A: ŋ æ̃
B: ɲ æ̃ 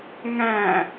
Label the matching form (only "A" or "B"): A